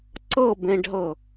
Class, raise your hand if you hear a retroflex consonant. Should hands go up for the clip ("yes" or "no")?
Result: yes